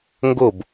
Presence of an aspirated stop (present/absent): absent